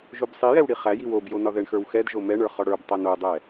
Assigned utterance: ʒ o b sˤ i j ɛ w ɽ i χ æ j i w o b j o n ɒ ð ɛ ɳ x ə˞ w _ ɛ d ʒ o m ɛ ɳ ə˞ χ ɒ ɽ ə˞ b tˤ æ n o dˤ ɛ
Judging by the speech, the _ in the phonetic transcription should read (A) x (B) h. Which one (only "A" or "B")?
A